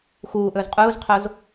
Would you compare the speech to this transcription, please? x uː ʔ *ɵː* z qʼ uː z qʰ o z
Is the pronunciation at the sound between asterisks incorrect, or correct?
correct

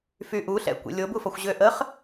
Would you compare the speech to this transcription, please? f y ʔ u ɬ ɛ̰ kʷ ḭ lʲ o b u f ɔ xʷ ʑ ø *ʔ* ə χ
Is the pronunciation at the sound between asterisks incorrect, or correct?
correct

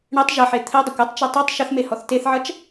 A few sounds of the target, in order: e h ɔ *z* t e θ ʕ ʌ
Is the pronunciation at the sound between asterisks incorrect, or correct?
incorrect: θ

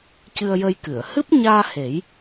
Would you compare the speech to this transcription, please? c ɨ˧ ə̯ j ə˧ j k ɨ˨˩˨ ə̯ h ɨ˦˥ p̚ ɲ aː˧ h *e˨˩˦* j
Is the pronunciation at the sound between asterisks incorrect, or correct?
correct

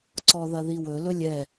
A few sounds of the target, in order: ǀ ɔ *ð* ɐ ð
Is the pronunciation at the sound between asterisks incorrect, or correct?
correct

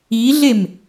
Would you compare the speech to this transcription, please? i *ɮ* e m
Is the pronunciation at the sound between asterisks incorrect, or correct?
correct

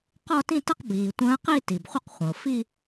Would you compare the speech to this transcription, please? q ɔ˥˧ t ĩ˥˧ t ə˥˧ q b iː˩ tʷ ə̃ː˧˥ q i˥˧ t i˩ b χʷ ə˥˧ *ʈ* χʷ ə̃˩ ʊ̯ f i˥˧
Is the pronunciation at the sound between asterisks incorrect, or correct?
incorrect: q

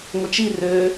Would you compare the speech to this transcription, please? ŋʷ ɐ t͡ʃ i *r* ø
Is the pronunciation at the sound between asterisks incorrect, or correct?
correct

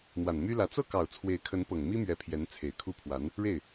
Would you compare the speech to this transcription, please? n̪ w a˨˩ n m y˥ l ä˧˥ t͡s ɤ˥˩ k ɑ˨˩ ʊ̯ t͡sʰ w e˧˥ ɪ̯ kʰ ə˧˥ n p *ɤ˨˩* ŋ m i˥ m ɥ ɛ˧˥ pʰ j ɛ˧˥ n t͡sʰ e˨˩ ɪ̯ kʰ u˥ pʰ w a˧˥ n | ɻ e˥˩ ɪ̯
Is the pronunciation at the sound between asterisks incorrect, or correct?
correct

